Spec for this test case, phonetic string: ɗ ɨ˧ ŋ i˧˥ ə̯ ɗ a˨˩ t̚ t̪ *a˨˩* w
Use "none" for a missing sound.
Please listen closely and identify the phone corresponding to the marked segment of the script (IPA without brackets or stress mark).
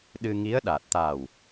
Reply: a˨˩